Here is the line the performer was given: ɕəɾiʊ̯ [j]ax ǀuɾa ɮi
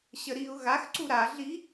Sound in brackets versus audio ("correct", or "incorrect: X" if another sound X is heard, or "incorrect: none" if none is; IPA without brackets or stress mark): incorrect: ɣ